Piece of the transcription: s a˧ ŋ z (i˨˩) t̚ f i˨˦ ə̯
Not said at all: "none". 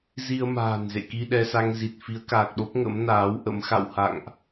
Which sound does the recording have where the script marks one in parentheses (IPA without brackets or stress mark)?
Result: i˨˩